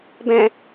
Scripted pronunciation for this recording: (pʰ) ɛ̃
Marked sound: incorrect: b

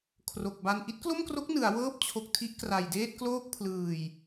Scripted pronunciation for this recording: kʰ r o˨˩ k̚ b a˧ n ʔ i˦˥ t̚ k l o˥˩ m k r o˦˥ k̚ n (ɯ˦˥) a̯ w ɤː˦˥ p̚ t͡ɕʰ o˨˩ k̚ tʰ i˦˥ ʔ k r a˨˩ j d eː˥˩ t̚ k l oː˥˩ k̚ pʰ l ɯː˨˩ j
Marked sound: incorrect: ɯ˩˦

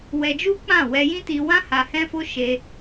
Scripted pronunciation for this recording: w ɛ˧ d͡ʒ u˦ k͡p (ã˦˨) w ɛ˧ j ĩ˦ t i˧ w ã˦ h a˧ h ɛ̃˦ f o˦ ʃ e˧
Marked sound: correct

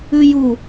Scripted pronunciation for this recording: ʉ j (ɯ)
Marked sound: incorrect: u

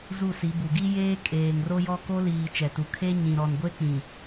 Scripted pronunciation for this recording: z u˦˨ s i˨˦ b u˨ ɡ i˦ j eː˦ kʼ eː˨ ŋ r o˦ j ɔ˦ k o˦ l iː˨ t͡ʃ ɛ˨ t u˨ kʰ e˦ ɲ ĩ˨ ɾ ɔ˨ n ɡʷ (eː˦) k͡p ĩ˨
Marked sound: incorrect: e˦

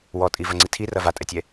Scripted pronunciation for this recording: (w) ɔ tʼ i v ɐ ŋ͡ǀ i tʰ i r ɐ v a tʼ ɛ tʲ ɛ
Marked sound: correct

